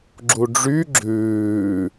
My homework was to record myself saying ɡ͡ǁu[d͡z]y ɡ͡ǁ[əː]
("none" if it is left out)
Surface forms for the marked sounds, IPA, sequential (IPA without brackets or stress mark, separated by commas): ɖ͡ʐ, ʉː